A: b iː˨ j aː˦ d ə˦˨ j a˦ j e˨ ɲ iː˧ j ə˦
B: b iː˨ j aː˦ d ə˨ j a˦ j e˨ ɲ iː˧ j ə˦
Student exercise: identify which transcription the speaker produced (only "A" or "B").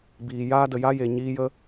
B